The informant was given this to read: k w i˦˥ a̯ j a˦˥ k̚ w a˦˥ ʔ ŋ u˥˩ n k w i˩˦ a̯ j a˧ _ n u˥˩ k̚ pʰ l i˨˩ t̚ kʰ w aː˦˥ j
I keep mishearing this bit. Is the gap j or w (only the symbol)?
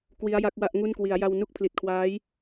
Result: w